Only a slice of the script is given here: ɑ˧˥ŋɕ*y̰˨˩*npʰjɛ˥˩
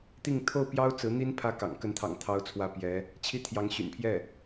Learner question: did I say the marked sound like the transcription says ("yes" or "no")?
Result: yes